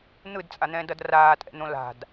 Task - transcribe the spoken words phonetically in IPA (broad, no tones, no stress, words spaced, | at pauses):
n̪ɯdt͡sʼan̪ɛ̃ːdʌd raːtʼɛ̰n̪õ la̤d